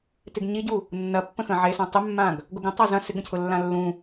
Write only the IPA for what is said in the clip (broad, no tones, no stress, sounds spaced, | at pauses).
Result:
t ɪ ɡ ɲ i ɟ u | nː ɐ pː ə̃ x ə̃ ʕ e s ã tˤ ɪ mː ã ɡ | ɡ ʊ ɡ ə̃ tˤ a z ɐ̃ s ɪ ɡ ə̃ cʰ ʊ lː ã lː ũ